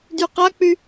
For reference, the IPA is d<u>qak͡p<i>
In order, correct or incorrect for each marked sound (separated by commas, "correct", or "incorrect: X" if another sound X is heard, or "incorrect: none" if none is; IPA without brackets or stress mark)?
incorrect: y, incorrect: y